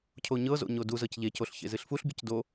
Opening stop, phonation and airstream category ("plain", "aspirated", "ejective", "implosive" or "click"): aspirated